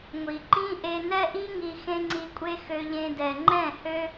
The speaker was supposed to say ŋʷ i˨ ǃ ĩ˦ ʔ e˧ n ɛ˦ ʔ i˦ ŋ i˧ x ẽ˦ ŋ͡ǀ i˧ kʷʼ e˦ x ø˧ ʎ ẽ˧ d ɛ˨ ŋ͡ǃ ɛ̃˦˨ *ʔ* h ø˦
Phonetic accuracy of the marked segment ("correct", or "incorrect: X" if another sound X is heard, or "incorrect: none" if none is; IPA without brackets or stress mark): incorrect: none